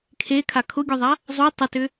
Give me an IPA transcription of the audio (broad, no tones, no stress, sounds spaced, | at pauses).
kʰ e kʰ a kʰ ʊ ɡʲ u ðˤ a | zˤ u tˤ ʊ t ʏ